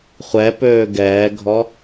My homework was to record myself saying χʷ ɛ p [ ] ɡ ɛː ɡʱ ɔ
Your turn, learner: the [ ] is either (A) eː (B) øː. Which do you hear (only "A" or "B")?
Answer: B